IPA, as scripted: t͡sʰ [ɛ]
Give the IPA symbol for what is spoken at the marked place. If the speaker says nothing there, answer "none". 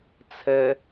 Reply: ɛ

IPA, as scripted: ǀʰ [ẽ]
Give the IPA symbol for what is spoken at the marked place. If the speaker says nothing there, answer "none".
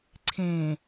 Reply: ẽ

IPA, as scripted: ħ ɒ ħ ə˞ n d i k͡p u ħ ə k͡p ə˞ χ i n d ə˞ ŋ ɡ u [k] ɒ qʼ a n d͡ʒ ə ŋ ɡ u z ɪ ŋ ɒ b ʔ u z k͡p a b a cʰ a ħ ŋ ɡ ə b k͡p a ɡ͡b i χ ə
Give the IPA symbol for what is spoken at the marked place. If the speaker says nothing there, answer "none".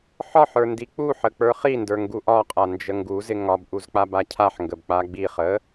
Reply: ʔ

